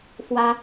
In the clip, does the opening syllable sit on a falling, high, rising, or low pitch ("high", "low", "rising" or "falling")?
high